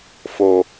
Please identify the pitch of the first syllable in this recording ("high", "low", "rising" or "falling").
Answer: low